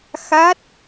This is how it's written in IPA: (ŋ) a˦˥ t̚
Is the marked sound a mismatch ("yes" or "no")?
yes